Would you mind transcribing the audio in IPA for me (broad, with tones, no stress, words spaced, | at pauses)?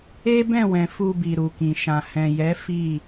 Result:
e˦bɛ̃˦˨wɛ̃˨ fu˧bi˨ ɾu˨kĩ˨ʃã˨ hɛ̃˨jɛ˨˦ fi˦˨